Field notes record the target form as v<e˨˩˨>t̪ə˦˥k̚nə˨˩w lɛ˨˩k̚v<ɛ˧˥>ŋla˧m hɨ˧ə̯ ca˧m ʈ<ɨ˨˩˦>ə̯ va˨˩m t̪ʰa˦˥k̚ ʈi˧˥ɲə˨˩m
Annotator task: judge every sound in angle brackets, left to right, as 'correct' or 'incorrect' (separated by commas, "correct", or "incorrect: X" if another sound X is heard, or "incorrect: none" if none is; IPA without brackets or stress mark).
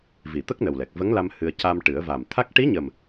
incorrect: i˨˩˨, incorrect: ə˧˥, correct